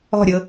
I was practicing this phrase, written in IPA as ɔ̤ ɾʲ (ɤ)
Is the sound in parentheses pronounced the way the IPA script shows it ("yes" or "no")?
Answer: yes